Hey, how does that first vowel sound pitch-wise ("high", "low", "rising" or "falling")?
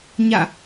falling